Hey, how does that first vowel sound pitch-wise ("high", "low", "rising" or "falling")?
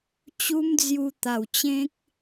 high